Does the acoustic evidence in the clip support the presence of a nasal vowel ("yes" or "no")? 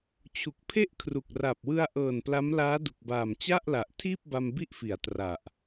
no